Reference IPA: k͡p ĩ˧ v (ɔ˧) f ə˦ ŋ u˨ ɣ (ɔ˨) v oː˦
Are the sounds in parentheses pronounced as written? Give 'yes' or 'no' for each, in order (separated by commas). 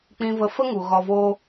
no, no